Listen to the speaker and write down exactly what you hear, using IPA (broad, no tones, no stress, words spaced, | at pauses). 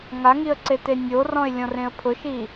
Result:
ŋaŋiə̯ǀete nʲorɔ̃ɪ̯lʲɔ̃rẽə̯ pʰʊʃi